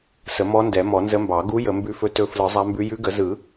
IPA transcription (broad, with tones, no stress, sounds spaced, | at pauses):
s ə˨˩˦ m ɔ˧˥ n d ɛ˨˩˦ m ɔ˨˩˦ n z ə˧˥ m b ɑ˨˩˦ ɡ u˧˥ j ə˨˩˦ m b ʉ˧˥ f ɵ˧˥ t ɵ˧˥ f l ɯ˨˩˦ zˤ a˧˥ m b ʉ˧˥ j ʉ˧˥ ɡ ə˨˩˦ z ɯ˨˩˦